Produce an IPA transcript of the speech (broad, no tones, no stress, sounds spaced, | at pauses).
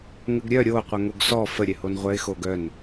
ŋ ə ɡ ɾʲ œ ɾʲ o qʷ œ ŋ o ɡ s ɔ f ə ɾʲ ɛ h o n ʁʷ œ ɪ̯ x o ɡ œ n